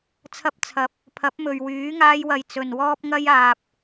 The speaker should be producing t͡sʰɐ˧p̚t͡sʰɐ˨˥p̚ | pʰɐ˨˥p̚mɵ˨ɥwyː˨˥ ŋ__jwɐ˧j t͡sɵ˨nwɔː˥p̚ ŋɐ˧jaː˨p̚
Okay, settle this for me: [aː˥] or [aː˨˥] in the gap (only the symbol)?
aː˥